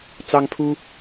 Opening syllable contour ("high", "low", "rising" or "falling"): high